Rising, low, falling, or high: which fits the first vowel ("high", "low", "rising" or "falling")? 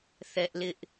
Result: high